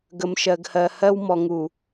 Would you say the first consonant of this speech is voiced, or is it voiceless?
voiced